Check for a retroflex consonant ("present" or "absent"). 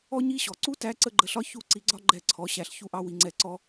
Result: absent